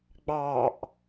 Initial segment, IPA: ɡ͡b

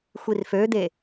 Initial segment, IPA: xʷ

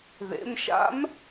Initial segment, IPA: ð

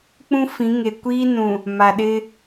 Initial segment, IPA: k͡p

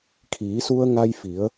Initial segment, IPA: kʰ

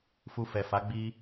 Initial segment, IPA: f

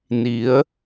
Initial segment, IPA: n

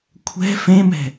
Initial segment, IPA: kʷʰ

